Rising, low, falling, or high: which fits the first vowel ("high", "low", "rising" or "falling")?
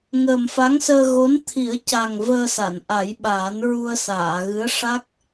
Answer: low